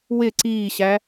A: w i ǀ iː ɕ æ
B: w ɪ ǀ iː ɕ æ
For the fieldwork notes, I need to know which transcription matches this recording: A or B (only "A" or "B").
B